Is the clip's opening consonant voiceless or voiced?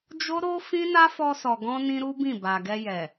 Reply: voiced